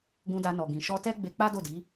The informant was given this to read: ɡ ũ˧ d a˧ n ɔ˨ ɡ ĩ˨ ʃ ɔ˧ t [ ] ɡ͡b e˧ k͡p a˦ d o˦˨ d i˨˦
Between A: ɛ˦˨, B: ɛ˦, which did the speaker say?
B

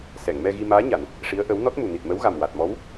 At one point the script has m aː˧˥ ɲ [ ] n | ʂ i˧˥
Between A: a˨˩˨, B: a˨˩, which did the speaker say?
A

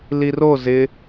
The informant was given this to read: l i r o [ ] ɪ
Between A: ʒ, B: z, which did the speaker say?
B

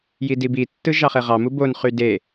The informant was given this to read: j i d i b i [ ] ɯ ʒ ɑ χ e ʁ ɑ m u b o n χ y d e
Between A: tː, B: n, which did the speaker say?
A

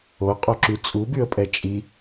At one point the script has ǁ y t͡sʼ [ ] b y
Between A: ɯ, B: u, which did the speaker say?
B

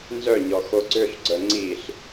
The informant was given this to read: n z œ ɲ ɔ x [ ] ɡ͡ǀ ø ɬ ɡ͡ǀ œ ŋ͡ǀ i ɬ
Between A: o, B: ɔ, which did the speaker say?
A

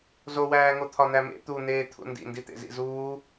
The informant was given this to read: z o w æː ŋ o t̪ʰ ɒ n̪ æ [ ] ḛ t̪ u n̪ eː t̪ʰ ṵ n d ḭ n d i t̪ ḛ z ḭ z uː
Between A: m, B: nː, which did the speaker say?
A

